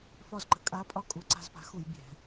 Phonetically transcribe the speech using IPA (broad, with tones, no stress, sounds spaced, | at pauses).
f ɒ˥˩ z ǃ ə̤˧ kʼ a˧˥ pʼ ɒ˥˩ kʼ u˩˥ ǀ a̤˧ z p a̤˩˥ x u˧˩˧ j bʲ ɛ̤˧˩˧